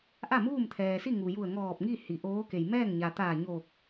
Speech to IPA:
ʔa˥˨ muː˥˨mt̪ʰɛː˩si˥˨ ŋu˩ju˧˩ə̯ŋɔː˧˩p̚ŋi˥˨ hi˩ʔoː˧˥ke˩j mɛː˥˨ŋ ɲa˩t̪aː˧˩ ɲoː˧˩k̚

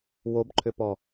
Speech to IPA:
wobǃʰʏpɔ

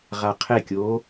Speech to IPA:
ʁaqʰekʲo

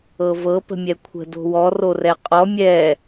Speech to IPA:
ɤvɤ pə̤mʲɛkʷʰə̤ do̤wɔ rorɛqʼɔ mʲɛ

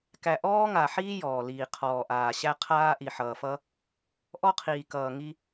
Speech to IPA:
kæ˨ʔɔː˦ŋa˨ħiː˦ jɔː˨ liː˨ qʰɔː˨ʔaː˨ɕæ˦qʰaː˦ ʔi˨ħʌː˨fʌ˦ | ʔɔ˦qʰiː˨kʌː˨ ŋi˦

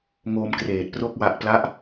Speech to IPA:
ŋo˧mkreː˨˩t̚pro˥˩k̚ wa˨˩ʔpla˦˥ʔ

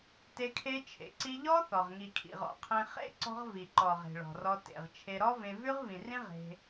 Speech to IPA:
te˧kʰe˧t͡ʃʰḛ˨ǀi˧ ʎɔ˦θɔ˨ʁŋi˨kʰḭ˨ʁ ɔ̰˨qʰẽ˧ χḛ˦ǀɔ̤˧ʁ vi˨ǃɔ˨ʁe̤˨ ɭɔ̤˨rɔ˧tḛ˨ʁt͡ʃʰe˧ ɾɔ˦vẽ˧ vʉ˦ʁvĩ˨rĩ˦ ʁe̤˧

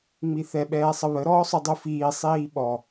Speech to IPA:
ŋ͡miθɛ ɓɛːsˤəβə ɾɔːsˤɵdˤufiː sˤiːɓɔ

